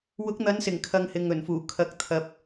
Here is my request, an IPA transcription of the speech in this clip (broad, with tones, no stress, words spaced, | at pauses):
wʊ˨˥k̚n̪ɐ˨˧nsɪ˨˩ŋ kʰɐ˧ŋhɪ˨ŋɵ˨˩nfuː˨˩ kʰɐ˨˥k̚t̪ʰɐ˨p̚